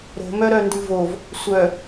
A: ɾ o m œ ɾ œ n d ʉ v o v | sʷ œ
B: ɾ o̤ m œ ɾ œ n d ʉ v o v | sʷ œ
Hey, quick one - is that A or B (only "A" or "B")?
B